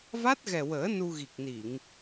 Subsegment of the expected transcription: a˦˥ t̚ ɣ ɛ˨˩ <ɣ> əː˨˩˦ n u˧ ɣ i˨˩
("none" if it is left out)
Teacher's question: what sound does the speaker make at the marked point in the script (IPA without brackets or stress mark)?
w